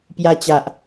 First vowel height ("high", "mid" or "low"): low